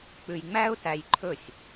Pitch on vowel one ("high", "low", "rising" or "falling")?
low